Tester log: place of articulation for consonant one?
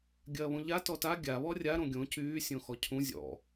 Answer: velar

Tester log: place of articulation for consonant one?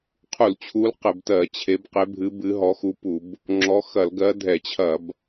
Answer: uvular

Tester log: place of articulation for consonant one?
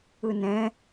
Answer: alveolar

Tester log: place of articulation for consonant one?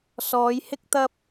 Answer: alveolar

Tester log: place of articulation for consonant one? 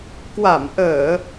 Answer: velar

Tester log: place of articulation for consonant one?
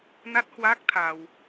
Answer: alveolar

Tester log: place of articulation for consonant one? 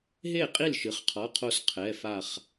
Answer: glottal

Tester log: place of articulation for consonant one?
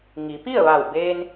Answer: velar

